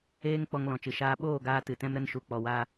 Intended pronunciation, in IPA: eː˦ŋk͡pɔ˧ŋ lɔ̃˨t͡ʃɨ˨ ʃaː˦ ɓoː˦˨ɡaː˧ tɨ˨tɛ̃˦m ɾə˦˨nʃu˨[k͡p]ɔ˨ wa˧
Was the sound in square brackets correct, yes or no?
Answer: yes